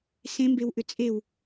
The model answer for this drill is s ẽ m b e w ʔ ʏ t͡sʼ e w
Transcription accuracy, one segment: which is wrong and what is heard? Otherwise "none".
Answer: none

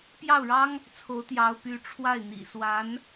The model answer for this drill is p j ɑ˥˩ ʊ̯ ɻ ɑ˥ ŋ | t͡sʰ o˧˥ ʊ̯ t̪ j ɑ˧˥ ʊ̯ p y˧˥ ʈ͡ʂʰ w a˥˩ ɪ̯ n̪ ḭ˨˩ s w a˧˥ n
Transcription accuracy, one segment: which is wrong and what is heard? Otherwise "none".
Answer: none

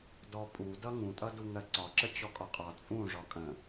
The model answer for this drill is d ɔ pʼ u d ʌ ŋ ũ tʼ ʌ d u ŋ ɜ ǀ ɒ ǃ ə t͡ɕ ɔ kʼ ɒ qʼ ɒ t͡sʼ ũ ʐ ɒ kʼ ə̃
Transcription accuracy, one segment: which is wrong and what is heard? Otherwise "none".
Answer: ǃ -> ǁ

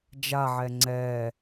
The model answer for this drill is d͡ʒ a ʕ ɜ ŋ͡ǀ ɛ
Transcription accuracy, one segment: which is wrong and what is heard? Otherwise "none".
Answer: ɜ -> ɛ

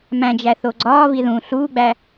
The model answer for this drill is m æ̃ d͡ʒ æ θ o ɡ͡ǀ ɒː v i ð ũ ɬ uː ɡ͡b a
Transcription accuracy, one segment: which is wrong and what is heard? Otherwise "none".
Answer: a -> æ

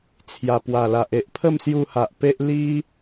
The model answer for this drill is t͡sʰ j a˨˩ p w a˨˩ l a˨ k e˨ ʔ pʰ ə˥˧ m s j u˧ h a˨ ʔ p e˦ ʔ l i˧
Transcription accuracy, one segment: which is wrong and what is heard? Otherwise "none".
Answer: k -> ʔ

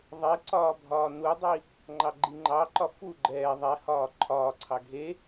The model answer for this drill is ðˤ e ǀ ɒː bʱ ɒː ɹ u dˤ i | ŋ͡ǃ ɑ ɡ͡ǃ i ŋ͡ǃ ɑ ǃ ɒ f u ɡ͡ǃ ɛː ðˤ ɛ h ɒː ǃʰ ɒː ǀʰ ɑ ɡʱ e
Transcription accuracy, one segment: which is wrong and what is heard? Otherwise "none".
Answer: ɹ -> n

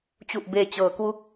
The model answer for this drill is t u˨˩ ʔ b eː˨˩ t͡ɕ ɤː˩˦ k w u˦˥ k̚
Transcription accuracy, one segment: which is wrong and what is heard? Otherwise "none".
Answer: t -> t͡ɕ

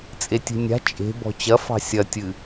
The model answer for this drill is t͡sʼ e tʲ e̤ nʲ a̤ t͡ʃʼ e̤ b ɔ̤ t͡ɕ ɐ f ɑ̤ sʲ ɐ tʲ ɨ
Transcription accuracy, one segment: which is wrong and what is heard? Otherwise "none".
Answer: none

